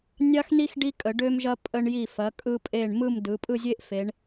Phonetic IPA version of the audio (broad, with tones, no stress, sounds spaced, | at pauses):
nʲ ɑ˥ x n i˥ x ɖ i˥ kʼ ə˩˧ ɖ ø˥ m ʒ ɐ˥ pʼ ə˧ ɳ j i˧˩ f ɐ˩˧ kʼ ɯ˧ pʼ e˧˩ ɳ m ɯ˥˧ m d ɯ˩˧ pʼ ɯ˥˧ zʲ e˥ ʔ f e˩˧ ɳ